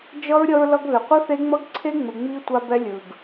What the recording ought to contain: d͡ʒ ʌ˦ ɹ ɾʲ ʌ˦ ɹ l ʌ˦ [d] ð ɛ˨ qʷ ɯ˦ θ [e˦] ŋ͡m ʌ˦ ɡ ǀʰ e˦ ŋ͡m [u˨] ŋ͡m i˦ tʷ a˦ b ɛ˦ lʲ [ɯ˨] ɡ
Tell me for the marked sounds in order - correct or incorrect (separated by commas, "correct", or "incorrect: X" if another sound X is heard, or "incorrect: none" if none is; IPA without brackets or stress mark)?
incorrect: ɡ, correct, incorrect: ɯ˨, correct